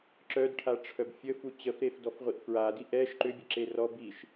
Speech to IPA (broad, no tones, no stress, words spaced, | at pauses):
ǁœdʈʰaʈ͡ʂʰœb fʲəfu t͡ɕəfɾefdɔfʁʷiʔ fɹadi ʔɛʃ ǃʏbʲəǁe rɔ biʃ